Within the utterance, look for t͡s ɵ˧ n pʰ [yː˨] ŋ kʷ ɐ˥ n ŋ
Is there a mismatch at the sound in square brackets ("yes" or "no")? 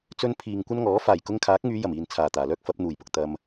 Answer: yes